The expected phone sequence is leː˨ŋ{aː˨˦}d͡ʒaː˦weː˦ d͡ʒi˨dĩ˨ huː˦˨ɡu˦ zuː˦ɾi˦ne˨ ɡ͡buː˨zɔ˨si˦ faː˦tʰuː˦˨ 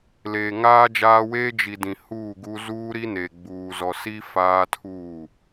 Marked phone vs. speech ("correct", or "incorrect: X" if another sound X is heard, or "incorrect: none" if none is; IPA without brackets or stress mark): incorrect: aː˦